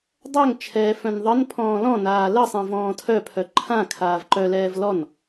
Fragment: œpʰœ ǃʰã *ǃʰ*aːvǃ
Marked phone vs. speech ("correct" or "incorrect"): incorrect